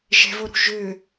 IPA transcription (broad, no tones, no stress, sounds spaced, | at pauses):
ʒ ɛ̤ v o ɾ ṳ ʒ ø